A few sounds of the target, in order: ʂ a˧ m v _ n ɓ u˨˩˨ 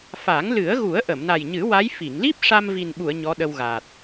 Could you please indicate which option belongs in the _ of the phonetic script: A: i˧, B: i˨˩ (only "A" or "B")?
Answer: B